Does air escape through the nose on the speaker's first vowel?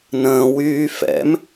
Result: yes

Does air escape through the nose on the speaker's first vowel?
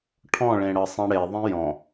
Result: yes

